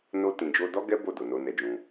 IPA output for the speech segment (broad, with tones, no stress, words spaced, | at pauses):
no˧tĩ˨ d͡ʒo˧dɔ˦ɡɛ˦ bo˦˨ do˨no˧nɛ˧d͡ʒũ˧